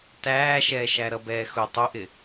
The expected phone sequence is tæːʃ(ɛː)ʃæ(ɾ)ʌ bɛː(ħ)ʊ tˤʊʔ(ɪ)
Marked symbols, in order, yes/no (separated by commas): yes, yes, no, yes